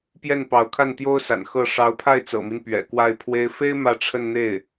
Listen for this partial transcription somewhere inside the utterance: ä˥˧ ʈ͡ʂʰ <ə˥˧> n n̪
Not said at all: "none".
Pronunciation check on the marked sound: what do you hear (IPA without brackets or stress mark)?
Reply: ə˥˧